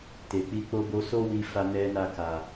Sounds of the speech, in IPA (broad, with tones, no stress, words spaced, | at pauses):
te˨k͡pi˧k͡po˦ bo˧so˦ wi˦ fa˦nɛ˦na˦˨ ka˨